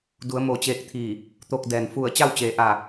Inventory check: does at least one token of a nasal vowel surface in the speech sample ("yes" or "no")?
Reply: no